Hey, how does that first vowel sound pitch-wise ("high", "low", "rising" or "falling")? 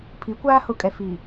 rising